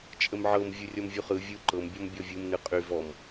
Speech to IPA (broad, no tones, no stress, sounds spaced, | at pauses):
t͡ʃʼ ə m ʕ ɤ m vʲ u rʲ ɔ m vʲ u χ ɯ vʲ ɯ ǃ ɤ m bʲ ɔ m bʲ ɔ vʲ u m n ɯ qʼ y v ɔ m